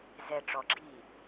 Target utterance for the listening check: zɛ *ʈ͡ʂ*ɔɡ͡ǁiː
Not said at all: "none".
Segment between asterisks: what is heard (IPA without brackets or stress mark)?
ʈ͡ʂ